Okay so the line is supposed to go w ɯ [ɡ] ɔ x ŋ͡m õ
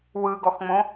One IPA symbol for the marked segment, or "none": ɡ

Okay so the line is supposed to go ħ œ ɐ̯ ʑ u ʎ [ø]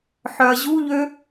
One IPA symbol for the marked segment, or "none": ø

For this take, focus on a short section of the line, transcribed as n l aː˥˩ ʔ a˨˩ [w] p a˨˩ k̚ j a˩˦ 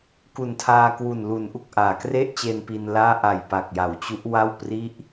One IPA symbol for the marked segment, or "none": j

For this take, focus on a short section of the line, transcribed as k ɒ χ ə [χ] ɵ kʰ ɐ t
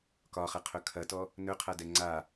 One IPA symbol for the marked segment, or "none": qʰ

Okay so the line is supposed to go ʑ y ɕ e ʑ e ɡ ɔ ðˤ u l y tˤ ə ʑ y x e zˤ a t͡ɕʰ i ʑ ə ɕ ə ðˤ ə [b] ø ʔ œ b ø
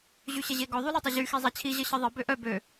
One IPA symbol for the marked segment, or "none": b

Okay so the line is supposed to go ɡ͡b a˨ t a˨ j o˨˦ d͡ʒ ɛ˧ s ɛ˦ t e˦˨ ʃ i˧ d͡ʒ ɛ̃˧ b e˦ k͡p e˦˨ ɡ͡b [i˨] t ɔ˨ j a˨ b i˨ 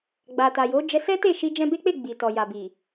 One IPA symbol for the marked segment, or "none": i˨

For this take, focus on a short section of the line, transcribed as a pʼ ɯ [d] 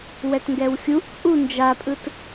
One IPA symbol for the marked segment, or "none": t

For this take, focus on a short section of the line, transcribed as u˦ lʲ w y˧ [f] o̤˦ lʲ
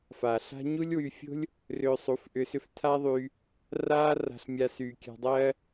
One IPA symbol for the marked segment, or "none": fʲ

